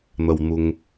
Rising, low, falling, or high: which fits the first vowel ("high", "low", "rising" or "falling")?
high